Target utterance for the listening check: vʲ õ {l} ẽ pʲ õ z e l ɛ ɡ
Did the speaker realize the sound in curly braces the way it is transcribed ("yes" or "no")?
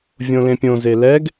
yes